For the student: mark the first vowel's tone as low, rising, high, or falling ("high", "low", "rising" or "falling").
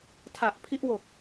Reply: low